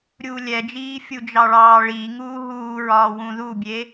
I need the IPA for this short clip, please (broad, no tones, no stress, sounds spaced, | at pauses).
ɾʲ uː lʲ ɛ d͡ʒ iː fʲ u d͡ʒ ɑ ɭ ɑː ɭ i ŋ uː ɦ uː ɹ ɒː w ũ ð u bʲ e